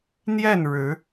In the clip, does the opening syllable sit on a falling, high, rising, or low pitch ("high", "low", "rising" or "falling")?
falling